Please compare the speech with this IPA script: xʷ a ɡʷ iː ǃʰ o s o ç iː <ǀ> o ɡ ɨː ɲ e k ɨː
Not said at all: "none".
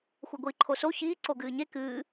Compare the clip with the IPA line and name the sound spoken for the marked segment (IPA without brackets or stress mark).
ǀ